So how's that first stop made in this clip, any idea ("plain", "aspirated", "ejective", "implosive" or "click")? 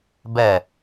plain